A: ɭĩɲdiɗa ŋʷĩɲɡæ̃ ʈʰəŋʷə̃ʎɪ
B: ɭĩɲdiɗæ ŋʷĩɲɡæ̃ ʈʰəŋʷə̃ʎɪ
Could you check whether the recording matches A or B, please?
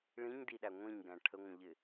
B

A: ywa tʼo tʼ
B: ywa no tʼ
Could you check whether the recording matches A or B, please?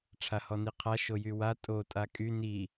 A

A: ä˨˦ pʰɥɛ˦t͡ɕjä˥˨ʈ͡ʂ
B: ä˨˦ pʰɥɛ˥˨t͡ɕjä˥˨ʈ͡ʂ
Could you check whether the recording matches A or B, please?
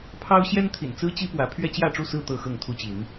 A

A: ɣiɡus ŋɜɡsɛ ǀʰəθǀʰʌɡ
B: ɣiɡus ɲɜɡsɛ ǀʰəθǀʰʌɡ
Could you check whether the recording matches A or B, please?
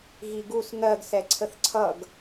A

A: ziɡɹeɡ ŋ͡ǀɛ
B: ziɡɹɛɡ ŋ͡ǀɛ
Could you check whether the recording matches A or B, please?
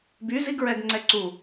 B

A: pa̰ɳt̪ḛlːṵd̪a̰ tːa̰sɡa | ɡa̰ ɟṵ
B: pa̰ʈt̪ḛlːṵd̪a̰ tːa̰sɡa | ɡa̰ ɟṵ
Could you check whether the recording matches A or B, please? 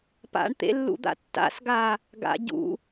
A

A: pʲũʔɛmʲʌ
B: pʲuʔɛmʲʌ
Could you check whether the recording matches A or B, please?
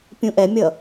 A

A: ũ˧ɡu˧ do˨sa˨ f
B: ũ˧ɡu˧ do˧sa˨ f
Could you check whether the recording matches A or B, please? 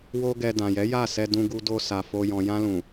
B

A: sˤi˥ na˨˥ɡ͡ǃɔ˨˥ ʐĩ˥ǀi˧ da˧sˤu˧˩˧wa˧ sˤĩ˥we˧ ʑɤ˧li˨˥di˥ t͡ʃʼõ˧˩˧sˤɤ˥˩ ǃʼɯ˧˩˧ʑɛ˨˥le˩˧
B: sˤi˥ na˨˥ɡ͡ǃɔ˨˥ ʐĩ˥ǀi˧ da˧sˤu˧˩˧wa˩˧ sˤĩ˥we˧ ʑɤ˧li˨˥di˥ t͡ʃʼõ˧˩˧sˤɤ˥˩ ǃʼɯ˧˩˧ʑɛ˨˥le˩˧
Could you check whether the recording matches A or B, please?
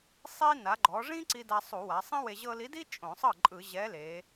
B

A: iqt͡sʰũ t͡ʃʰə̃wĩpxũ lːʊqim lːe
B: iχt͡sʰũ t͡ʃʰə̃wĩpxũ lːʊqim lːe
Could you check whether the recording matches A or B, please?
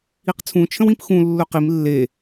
A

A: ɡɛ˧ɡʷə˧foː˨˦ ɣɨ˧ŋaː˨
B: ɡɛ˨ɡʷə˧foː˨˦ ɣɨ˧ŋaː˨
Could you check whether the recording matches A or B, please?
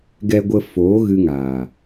A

